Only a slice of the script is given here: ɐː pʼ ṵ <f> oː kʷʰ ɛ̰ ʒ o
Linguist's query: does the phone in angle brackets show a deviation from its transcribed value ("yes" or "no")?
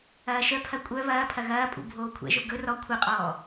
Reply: yes